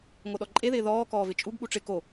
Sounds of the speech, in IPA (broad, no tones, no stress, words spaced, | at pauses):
ŋoɗɔǃʼeðɪː ðɔː kɔːvɪt͡ʃʼuɡɠu ʈ͡ʂɪ ko